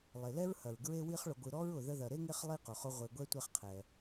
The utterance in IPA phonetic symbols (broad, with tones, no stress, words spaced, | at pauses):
lˠe˩lɛ˥ɹhɐ˩ɹ ɡɹe˦wi˦χɭʊ˨ɡʷɯ˨ ɾɔ˥ɹʊ˩ ðə˦ðɐ˨ ɾe˥ŋe˦χ lˠi˥qʊ˩χʊ˦ ʁʷe˨ɡʷɛ˦ tʷe˦χqʰɛ˩